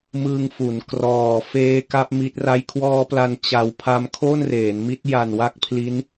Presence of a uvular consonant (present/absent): absent